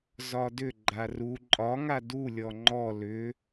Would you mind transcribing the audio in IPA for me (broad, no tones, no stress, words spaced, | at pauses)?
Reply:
zɒdʏ ɡ͡ǃaru ǃʼɒ ŋadu lʲɔŋ͡ǃɔ lʏ